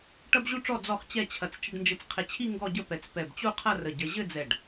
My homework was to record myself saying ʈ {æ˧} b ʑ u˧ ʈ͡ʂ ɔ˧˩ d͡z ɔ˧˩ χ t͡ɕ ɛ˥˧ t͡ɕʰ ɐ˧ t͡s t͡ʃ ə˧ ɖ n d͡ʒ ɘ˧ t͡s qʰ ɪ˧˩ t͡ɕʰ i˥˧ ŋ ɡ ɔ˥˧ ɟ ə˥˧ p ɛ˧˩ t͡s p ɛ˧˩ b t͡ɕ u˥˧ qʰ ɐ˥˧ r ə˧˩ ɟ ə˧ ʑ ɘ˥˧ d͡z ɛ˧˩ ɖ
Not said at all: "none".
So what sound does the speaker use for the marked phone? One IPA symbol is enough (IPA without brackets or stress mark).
ɐ˧